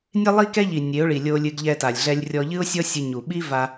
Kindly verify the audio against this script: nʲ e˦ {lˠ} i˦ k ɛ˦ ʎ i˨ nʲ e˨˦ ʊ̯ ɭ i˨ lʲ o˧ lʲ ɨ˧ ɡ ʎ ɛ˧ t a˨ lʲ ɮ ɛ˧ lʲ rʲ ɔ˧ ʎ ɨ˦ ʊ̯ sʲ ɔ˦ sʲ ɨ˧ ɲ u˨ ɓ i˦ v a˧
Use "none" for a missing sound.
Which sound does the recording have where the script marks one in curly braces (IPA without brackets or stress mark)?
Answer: lˠ